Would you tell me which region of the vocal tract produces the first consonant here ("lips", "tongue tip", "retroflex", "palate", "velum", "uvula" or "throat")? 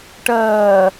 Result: retroflex